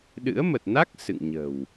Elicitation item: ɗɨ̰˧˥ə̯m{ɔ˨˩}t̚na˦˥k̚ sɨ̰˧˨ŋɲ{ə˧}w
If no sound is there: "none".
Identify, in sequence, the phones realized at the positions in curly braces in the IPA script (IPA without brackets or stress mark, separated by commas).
ə˨˩, ə̤˨˩